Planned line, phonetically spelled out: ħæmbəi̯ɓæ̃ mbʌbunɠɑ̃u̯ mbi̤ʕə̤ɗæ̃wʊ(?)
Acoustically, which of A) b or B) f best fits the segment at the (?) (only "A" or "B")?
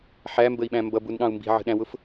B